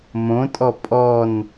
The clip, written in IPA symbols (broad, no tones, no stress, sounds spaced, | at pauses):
m õ tʼ ɔ pʼ ɔ n